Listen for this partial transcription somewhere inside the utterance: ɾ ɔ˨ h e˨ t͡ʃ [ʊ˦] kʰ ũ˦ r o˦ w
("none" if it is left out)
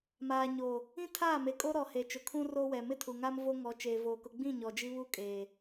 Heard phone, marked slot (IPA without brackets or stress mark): ʊ˨